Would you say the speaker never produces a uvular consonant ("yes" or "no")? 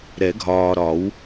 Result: yes